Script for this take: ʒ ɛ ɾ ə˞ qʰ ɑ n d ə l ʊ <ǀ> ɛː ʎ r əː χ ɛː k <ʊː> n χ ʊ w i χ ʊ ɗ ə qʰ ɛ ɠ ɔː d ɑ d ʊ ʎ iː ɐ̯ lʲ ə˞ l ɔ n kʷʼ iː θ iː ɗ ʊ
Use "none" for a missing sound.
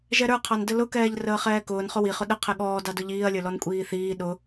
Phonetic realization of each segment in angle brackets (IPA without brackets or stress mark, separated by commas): k, ʊː